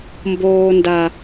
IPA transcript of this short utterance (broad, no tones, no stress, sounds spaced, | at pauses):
m b oː n d a